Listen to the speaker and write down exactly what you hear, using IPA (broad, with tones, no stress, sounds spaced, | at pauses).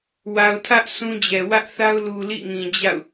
w a˨ ʊ̯ tʰ ä˦ ʔ s ũ˦ d͡ʑ ɛ˨ w ä˦ ʔ θ a˦ ʊ̯ l u˨ l ḭ˦˨ ŋ ĩ˨ d͡ʑ a̰˦˨ ʊ̯